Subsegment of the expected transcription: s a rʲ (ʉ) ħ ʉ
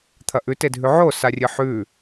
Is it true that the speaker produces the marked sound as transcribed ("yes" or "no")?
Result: no